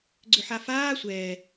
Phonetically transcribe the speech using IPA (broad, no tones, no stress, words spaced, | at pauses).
ɡ͡ǀʏħafaː sʷɛː